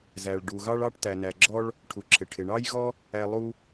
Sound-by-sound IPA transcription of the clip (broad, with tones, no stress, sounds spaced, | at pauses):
z æ˩ ɭ ɖ u˩ ɣ ɑ˥ ɭ ɑ˥ ʈ t æ˩ n æ˩ ɡ͡ǁ ɔ˥ ɭ | ʈʰ u˩ ǁʰ ɪ˩ ʈʰ ɪ˩ ɳ ɑ˥ j ɣ ɔ˥ | æ˥ lˠ u˥